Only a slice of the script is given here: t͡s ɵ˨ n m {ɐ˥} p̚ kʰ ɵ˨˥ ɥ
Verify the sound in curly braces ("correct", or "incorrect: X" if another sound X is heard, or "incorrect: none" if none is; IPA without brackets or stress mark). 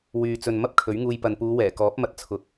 correct